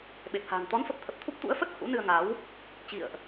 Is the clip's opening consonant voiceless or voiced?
voiced